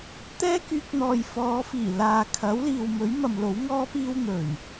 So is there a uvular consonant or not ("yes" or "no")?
no